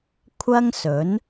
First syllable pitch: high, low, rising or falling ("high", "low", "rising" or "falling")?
high